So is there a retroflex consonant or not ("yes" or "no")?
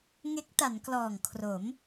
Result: no